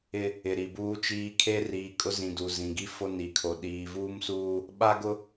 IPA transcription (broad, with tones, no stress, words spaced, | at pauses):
ɪ˦ | ɪ˨ɾi˨buː˦t͡ʃiː˦ kʰe˦riː˨kʼʊ˦zĩ˨ du˨zĩ˨ɡi˦ fo˦ni˨kʰo˨ ɗiː˨vuː˦msuː˦ | ɓa˦ɡʊ˦